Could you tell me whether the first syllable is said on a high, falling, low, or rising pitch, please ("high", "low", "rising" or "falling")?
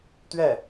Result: falling